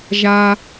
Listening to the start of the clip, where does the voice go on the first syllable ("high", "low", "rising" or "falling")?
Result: low